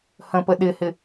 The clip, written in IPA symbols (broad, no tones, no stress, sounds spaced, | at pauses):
h ə̃ p ə ɗ ɪ h ɪ